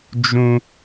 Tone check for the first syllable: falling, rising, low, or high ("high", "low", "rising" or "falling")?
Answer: high